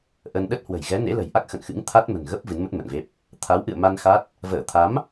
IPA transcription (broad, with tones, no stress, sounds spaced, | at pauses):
ʔ ə˧ n ɗ ə˦˥ t̚ h w ə̤˨˩ j ɣ ɛ˨˦ n ḛ˧˥ l ə̤˨˩ j ʔ a˦˥ k̚ x ə̰˧˨ n x ɨ̰˧˥ ŋ t̪ʰ a˦˥ t̚ m ə̤˨˩ n ɣ ə˦˥ p̚ v ɨ˨˦ n m ə˦˥ t̚ m ə̰˧˨ n v e˦˥ p̚ | t̪ʰ a˨˦ w ʔ ɨ̰˧˨ ə̯ m a˧ n x a˦˥ t̚ | v əː˧˩ t̪ʰ a˨˦ m